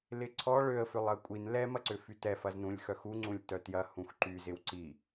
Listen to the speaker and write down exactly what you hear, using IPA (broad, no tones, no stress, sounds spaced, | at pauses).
l ɪ ǀʰ ɔ ɭ ø ə̯ f ʏ lˠ ɐ kʷʼ i n l ɛ m ɐ ǀ ʏ f y t ɛ f ɐ z n ũ lʲ x œ x u ŋ͡ǀ ũ lʲ t œ t j ɐ h ũ x ǃ y z ɪ w ǀ i